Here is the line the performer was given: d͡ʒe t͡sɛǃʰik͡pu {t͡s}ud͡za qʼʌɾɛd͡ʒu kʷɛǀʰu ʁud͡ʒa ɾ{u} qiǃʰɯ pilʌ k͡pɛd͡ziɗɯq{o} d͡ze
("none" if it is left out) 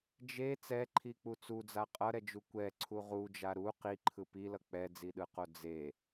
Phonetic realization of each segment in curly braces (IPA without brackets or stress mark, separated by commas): t͡s, u, o